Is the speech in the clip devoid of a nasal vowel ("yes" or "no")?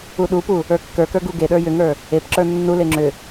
yes